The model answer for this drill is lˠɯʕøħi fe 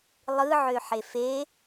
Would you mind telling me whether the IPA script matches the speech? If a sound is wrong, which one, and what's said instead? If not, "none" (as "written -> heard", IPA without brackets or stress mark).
i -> e